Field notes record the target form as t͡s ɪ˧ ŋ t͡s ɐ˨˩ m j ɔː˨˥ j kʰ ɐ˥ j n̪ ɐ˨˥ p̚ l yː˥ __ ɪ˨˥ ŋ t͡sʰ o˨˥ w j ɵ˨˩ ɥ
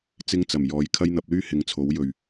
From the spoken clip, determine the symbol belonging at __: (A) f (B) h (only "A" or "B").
B